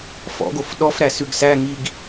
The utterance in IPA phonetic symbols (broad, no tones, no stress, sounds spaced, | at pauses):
f ɔ̰ ɡ o f ɗ ɔ f ɾ æ s ʉ ɡ s æ ŋ i ɡ